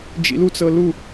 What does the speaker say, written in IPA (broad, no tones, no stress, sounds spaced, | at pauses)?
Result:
d͡ʒ ḭ l u t͡s ɤ l u